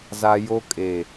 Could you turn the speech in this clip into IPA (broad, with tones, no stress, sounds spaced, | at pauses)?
z a˦ j o˦ kʼ e˨